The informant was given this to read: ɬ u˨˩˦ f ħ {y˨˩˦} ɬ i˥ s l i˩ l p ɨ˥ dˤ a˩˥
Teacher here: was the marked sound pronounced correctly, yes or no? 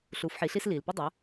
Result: no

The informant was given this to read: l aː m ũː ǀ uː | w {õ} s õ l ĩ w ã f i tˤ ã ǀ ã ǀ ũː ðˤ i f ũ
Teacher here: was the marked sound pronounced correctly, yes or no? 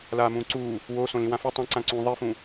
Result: no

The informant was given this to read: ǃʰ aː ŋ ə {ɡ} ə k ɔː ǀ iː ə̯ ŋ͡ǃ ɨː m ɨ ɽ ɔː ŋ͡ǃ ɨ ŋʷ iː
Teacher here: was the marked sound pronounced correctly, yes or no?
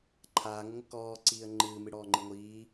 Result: no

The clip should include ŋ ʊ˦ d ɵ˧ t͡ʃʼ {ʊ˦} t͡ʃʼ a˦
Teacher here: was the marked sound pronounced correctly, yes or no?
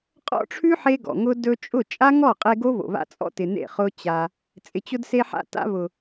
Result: no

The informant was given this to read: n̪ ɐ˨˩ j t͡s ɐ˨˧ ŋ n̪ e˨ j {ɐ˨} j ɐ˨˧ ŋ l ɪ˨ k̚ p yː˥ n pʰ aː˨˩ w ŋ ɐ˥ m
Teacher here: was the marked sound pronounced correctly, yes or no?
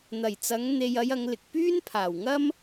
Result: no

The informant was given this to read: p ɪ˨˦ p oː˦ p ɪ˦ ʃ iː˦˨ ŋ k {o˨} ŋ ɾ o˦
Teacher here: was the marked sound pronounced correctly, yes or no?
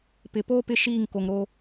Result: yes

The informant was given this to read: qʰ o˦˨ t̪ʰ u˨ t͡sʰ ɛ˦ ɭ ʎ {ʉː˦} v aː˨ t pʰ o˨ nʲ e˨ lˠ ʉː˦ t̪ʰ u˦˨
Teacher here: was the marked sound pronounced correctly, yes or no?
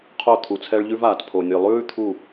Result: no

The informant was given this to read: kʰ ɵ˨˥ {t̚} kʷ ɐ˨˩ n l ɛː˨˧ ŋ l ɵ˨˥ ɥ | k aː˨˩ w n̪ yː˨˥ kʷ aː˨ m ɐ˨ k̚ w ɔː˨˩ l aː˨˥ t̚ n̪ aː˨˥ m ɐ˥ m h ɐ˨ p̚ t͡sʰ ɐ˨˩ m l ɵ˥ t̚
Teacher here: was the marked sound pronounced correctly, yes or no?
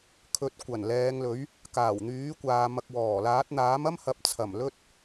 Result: yes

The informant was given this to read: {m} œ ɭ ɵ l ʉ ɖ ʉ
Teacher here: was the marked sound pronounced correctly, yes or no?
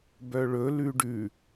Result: no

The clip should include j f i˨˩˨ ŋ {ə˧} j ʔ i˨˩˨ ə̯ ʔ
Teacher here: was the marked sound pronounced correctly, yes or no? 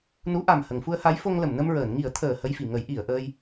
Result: no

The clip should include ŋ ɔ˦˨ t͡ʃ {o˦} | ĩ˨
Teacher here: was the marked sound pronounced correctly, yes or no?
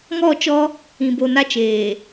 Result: no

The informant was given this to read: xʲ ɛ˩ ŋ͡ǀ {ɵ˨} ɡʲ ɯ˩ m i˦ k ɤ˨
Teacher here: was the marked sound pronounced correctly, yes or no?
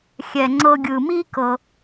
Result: no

